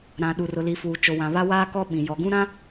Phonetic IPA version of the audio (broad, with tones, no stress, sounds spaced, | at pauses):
ɾ ã˨ ɗ u˨ r ʊ˨ l i˨ f uː˨ t͡ʃ o˨ w ã˨ β a˦ w aː˦ k ɔ˦ ɓ ĩ˨ j ɔ˨ ɡ ũ˦ ɾ ã˦